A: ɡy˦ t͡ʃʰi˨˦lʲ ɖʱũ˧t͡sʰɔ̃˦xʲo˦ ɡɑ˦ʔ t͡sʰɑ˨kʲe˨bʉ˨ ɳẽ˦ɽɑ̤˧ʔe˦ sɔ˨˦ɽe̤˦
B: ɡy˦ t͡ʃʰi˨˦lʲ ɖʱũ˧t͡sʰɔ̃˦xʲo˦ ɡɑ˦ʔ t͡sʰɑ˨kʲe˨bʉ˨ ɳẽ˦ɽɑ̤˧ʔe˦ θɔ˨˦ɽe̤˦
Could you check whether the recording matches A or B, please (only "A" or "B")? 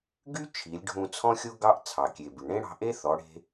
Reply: B